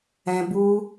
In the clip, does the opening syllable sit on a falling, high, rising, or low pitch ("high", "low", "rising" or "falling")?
high